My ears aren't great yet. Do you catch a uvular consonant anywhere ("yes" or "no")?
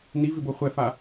yes